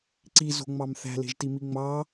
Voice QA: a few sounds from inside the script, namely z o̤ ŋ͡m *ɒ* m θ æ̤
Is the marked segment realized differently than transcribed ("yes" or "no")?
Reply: yes